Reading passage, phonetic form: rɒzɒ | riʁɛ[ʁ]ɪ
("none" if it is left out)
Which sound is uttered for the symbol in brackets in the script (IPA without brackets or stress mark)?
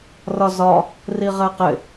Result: q